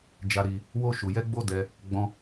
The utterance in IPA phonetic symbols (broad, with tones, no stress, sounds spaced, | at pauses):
d͡ʒ a˧ ɾ i˧ | w o˧ ʃ u˨ j ɛ˧ ɡ͡b o˦ d ɛ˧ | ɡ͡b ɔ̃˧